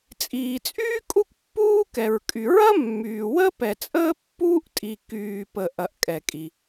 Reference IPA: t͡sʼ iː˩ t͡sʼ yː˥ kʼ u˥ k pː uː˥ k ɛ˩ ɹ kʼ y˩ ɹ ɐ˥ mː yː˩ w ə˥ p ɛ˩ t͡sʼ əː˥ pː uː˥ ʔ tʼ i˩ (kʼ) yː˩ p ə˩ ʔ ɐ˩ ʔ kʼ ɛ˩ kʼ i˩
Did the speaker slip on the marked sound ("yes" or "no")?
yes